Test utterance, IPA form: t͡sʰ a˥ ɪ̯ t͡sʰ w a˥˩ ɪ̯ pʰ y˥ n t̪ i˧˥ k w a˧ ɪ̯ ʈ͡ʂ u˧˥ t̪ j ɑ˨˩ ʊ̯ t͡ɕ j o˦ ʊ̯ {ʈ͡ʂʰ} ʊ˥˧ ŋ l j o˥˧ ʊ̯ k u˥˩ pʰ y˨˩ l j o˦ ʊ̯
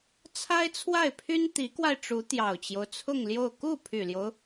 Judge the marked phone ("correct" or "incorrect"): incorrect